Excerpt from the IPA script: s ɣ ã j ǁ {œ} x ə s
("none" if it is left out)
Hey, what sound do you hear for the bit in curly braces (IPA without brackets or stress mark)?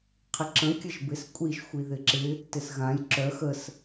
œ